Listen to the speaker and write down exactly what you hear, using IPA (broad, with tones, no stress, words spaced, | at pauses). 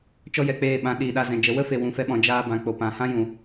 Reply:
t͡ʃɔ˦jɛ˨k͡peː˦˨ɓã˨˦ ɗiː˨ɗa˧zɛ̃˨d͡ʒə˨˦ wə˦fe˨ wũ˨fɛ˧ɓɔ̃˨ d͡ʒaː˧bã˨ k͡po˨pã˨hã˦ jũ˨